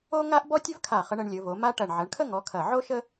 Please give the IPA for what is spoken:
o˥ŋa˥ʔ bɔ˥tʲɵ˥vkʰa˧˩χə˨˦ɳ ə˨˦ɳlʲɵ˨˦vo˨˦ma˥ ʈɐ˧˩ɳ ʕɐ˨˦ɳkʰə˥ŋɔ˨˦ kʰɐ˧˩ ʕo˥ʃə˥

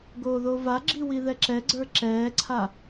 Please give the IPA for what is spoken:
ɡoːðovaɡ͡ǁi wiðɛǁɛɡ͡ǀə˞ ǁɛːǀʰa

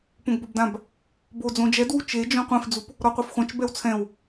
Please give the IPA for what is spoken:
põɡbobdãb | bo d͡zõd͡ʒɛdwu t͡ʃed͡ʒõ qʷẽfd͡zup | ɾɔqʷefχʷãt͡ʃ bɛwt͡sʰɛ̃w

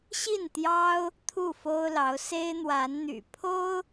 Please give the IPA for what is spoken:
ɕi˥˩nt̪jɑ˥ʊ̯ | t̪ʰu˥˩fo˥ʊ̯lɑ˧˥ʊ̯ se˥ɪ̯n̪wa˧˥nn̪y̰˨˩ pʰo˥ʊ̯

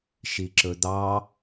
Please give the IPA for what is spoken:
ʃiǁɵd̪ɑ

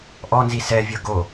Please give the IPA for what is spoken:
ʔɔnzi sɛvʲɤ ɡo

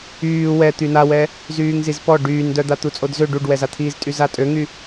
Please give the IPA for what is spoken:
yː wɛ t̪ynawɛ | zyːŋzizpɔ ɖyːndœd̪a t̪ut͡sʼodzø ɖuɖwɛzat̪ʰiːz tʼyzatʼøŋy

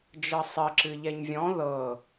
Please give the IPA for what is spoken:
d͡ʒɤsˤə ǁɨʎɛɲvʲɔ̃ ðɤ

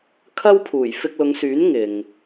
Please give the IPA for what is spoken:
kʰɐ˥wpʰuː˨˩j fɪ˧k̚lʊ˨˧ŋsyː˨˥n ŋɪ˨ŋ

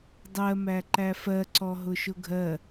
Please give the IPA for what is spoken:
dˤɜmæǃæ fɜǀɔɦʊʃʊ ɡʱɜ

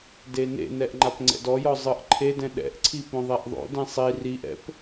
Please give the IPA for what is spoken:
denḛnɛʔ ŋ͡ǃapŋ͡ǀɛ̰dɔjɔ zˤɯʔǃʰedɛ̃ ɗɛ̰ʔǀʰi põðˤɛʔðˤo̰dɛ̃ sˤi riʔɛ̰p

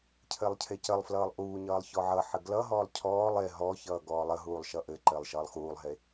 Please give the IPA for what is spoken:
cʰɘːlˠcʰecəlˠflʌːlˠ ʔuːɲʌːlˠ çɔʕʌħɘ ɡlʌɦɔːlˠ cʰɔːlˠ e ɦɔçʌː ɡɔːlˠəɦuːlˠ ʃʌʔɘǃɘːlˠ ʃʌːlˠxuːlˠɦe

